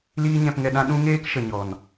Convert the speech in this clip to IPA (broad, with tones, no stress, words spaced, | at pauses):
liː˦ɲɛ̃˧pŋɛ˧ɗã˦ ɗũ˦ŋeː˦k ʃə˨ɲɔ˨n